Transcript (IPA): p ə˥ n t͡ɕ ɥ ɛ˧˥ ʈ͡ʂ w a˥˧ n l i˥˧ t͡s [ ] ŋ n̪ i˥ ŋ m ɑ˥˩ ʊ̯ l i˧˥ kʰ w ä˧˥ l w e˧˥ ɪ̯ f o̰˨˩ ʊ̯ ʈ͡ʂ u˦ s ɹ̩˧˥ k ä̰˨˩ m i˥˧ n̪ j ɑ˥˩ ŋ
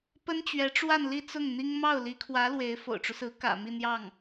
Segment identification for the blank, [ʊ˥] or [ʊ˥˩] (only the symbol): ʊ˥˩